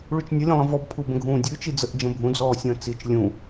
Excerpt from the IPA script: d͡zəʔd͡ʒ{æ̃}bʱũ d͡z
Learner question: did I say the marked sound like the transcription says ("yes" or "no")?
no